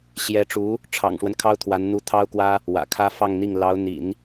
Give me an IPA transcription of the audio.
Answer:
ɕ j ɛ˧˥ ʈ͡ʂ u˧˥ | ʈ͡ʂʰ ɑ̰˨˩ ŋ ʂ w ə˦ n kʰ ɑ˥ ʊ̯ t̪ʰ w a˧˥ n n̪ u˧˥ t̪ʰ ɑ˥ ʊ̯ k w ä˥ | w ä̰˨˩ kʰ ä˥ f ɑ˥˧ ŋ n̪ i˥˩ ŋ l ɑ˧˥ ʊ̯ n̪ ḭ˨˩˦ n

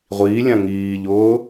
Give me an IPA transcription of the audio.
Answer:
ʁʷ iː lʲ ã ŋ iː ʎ ʊː

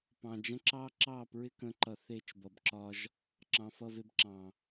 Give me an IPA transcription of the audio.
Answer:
p ɑ̃˨ d͡ʒ ə̃˦ ǁ ɑ˦ ǁ ɑ˦˨ p ɹ ɪ˦ k ə̃˧ ǃ ʌ˧ θ e˦˨ t͡ʃ b ʌ˧ b ǁ ɒ˦ ʒ | ǁ ɑ̃˨ f ʌ˦˨ v e˦ b ǁ ɑ̃˨

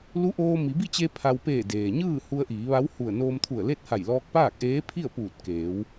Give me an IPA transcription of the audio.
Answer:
l u˧˥ ʔ oː˧ m i˩˧ b i˥˨ t͡ɕ e˧ pʰ a˧ w p eː˧˩ d eː˩ ɲ ɯː˥˨ h u˧ ə̯ ʔ iː˩˧ ʋ a˧˥ w h u˧˩ ə̯ n oː˧ m t̪ʰ u˧˩ ə̯ l e˥˨ t̚ h a˧˩ j l ɔː˧ k̚ p aː˥˨ k̚ ʔ eː˧˥ pʰ i˥˨ ə̯ p uː˧˩ t̚ k eː˩˧ w

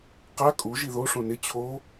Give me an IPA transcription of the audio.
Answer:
q a kʼ u ʒ i ð o ʂ õ n ɪ t͡ɕʰ o

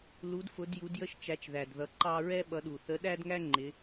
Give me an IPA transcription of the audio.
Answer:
l u˨˦ d f ʊ˨˦ d j u˨˦ d j ə˦ ʃ t͡ʃ æ˨˦ t͡ʃ ð æ˨˩ d ð ʌ˨˦ ǃ ɑ˦ ɹ ɛ˦ ɓ ʌ˨˦ ɗ u˨˩ θ ə˨˦ ɗ æ˦ d ŋ æ˦ ŋ͡ǃ ɪ˨˦

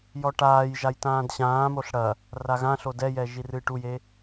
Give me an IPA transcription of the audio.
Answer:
j ɔ ʈ aː j ʒ a j t ãː d ɕ ãː m o ɬ ɽ ɐ | r a ɣ ã ɬ o d ɛ j ɛ ʒ i r ɨː ʈ u j e

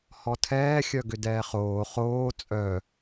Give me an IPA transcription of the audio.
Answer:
h ɔ tʰ ɛː xʲ œ ɡ ʏ d ɛː χ oː χ oː t͡sʼ œ

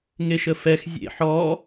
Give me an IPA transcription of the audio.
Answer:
ŋ e ʃ ə f ɛ x zʲ ḛ ħ ɔ

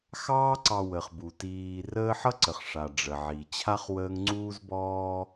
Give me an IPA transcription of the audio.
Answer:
x ɑː˦ ǀ ɑ˨ w ə˩ χ b u˩ t iː˨ r əː˦ ħ ʌ˥ ǀ ə˩ χ ʂ a˩ ɖ͡ʐ ə˩ ʕ i˩ t͡ɕʰ a˥ χ w əː˦ ŋ ŋ͡ǀ uː˥ z b ɔː˥

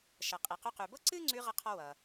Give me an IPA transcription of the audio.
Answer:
ʃ ʌ˩ qʼ i˩ q ʉ˧ q ʉ˩ b ɤ˥ ǀ ɨ˥ ŋ͡ǀ ʉ˧ ʁ ʌ˥ qʰ ɔ˥ w ʌ˩

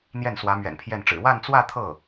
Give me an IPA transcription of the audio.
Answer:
n̪ j ɛ˥˩ n s w ä˧˥ m ɥ ɛ̰˨˩ n pʰ j ɛ˥˩ n ʈ͡ʂ ɻ̩˨˩ w a˥˧ n t͡s w ä˥˧ t̪ʰ ɤ˥˩

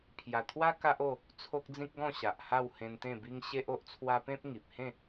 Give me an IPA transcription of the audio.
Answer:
pʰ j a˨˩ t̪ʰ w a˦ k a˦ ʔ o˥˧ | t͡sʰ o˦ k̚ d͡z ĩ˦ k̚ ɡ ɔ̃˥˧ ɕ a˨ ʔ h a˥˧ w h ẽ˧ n t̪ ẽ˥˧ b i˦ ŋ ɕ e˦ ʔ o˦ ʔ t͡sʰ w a˦ p ẽ˦ p̚ ŋ i˨ p̚ h ẽ˥˧

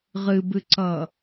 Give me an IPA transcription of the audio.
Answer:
ʁ ɨ b ɨ ǀ ʌ

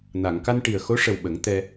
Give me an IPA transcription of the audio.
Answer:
n a˨˩˨ ŋ k a˧ n ʈ i˨˩ ə̯ x o˧˥ ʂ ə˨˩ w ɓ ə˨˩˦ ŋ t̪ ɛ˧

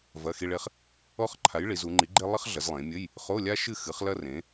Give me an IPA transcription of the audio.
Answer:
v ɐ˧˥˧ x i˥ ɭ e˥ χ | ɔ˥ χ ǃʰ a˨˥ j ɭ i˩˧ z u˩˧ ŋ͡ǃ i˨˥ ɡ͡ǃ e˥ lˠ ɐ˥ χ ɮ ɐ˩˧ z lˠ ẽ˩˧ mʲ ɘ˧˥˧ j | χ o˧˥˧ lʲ a˥ ʃ ɨ˥˨ x ɨ˨˥ χ l ɐ˥ r ẽ˨˥

